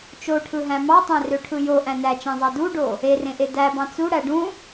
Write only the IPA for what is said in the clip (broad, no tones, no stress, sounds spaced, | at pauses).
t͡ʃ o ʈʰ ɯ ɦ æ̃ m ɑ tˤ æ̃ r ø ʈʰ ɯ j o ʔ æ̃ n æ t͡ʃ æ̃ zˤ ɑ d u ɖ o | e r ẽ ʔ e d æ b ɑ̃ t͡s u ɽ æ ɖ ũ